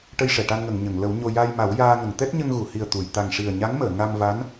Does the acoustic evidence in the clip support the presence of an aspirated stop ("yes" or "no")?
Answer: no